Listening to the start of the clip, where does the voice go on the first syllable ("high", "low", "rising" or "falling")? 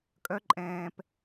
high